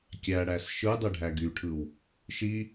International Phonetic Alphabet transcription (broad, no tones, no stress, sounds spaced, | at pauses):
kʲ æ ɽ æ s ʃ ɯ dˤ e ɖʱ æ ɡ y ʈʰ ɯ w | ʃ i